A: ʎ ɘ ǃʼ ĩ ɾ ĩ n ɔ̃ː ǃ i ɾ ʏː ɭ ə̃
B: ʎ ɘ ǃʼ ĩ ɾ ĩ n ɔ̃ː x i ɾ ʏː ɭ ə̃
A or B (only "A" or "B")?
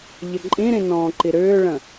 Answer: A